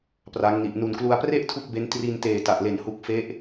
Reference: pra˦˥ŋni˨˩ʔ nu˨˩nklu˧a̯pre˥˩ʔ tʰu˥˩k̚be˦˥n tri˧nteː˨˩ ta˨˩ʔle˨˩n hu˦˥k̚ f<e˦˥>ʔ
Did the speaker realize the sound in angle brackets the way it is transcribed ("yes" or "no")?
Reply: yes